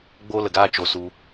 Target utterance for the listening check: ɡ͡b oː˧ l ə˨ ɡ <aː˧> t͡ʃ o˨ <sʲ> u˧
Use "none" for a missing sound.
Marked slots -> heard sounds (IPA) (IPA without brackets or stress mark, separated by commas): aː˧, s